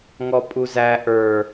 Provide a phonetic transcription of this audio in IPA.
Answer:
ŋ ɔ pʼ u z æ ʔ ə˞

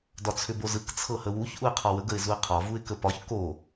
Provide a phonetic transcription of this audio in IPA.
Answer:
d ɒ t͡sʰ ʏ b o z ɯ k t͡sʰ ɤ h ə w u ç ʔ u ɪ̯ qʰ ɒ w ə ɡ ə ɪ̯ z u ɪ̯ qʰ ɒ v u ɪ̯ k ə p ɒ ç k o

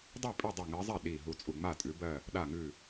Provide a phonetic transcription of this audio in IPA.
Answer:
dˤ i˥˩ pʼ ʉ˥˩ dˤ i˧˩ ŋ ɜ˨˦ zˤ ɛ˥˩ ɗ i˧˩ ɦ u˧˩ t͡sʼ u˧˩ ŋ͡m a˥˩ tʼ ʉ˨˦ b ɜ˧˩ | ɗ a˧˩ ŋ ʉ˧˩

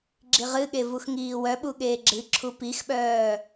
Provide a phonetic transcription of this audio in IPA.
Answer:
ɡ͡ǁ i ʁ ɨ ɠ e v u x ŋ iː w œ ɓ u ɠ eː ɡ͡ǁ ɨ ǁʰ u p i x ɓ œː

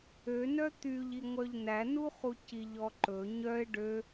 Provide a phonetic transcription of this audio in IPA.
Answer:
ø n œ t̪ y ʎ i ŋʷ œ ʎ n æ n u χ u c i ʎ ɔ ǃ ɵ ɲ œ ɪ̯ ɖ ø

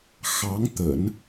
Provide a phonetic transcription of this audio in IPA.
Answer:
x ɑ˧˥ ŋ t̪ ə̰˨˩˦ n

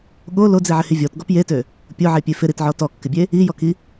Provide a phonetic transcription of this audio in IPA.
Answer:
ɠ o l o d͡z i ʕ ɪ h i vʲ ɔ t ɡ ɔ p j e t ø | pʲ ʊ ʕ e pʲ e f ɪ ɾ i t ʕ ɔ t ɔ kː ɪ bʲ e | i j ɔ k i

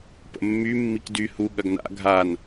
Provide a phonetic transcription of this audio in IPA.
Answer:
p ə̰ mː y mː i k d y h u ɠ ɐ ɡ n a̰ ɡʱ a n

